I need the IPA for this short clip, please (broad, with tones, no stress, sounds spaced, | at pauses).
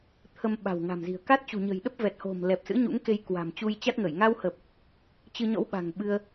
t̪ʰ ə˧ m ɓ a̤˨˩ w ŋ a̤˨˩ m z i̤˨˩ ə̯ k a˦˥ t̚ t͡ɕ ṳ˨˩ ɲ ə̤˨˩ j ɗ ə˦˥ p̚ v ɛ˨˩ t̚ h o̤˨˩ m l ɛ˨˩ p̚ s ɨ̰˧˥ ɲ ṵ˧˥ ŋ k e˧ j k w a̤˨˩ m t͡ɕ u˧ j t͡ɕ a˦˥ t̚ ŋ ə˧˩ j ŋ a˧ w h ə˨˩ p̚ | t͡ɕ ɨ˧ ɲ ɔ̰˧˥ w ɓ a̤˨˩ ŋ ɓ ɨ˧ ə̯